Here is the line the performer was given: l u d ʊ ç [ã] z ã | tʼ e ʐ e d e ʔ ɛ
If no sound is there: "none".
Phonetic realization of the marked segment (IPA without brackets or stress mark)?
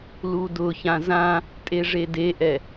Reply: ã